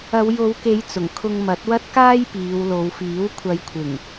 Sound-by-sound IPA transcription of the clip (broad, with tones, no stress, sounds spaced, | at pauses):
ɐ˨˧ w j o˨˧ w k e˨˧ j t͡s ʊ˨˩ ŋ kʰ ʊ˧ ŋ m ɐ˨˥ t̚ w ɐ˥ t̚ k aː˥ j p iː˨˧ w l o˨˧ w f iː˨˥ w kʷʰ ɐ˨˧ j kʷʰ ɪ˨˩ ŋ